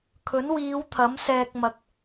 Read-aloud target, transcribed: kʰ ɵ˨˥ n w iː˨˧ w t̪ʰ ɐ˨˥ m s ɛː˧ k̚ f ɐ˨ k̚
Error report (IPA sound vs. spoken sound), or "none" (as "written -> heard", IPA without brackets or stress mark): f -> m